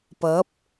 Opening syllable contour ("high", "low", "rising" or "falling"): rising